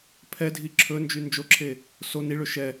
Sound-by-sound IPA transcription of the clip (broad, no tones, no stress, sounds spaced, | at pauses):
pʰ ɛ dʱ i ǁʰ ɵ n d͡ʒ y n d͡ʒ o ǁʰ e | s o n i ɭ ø ʃ ɛ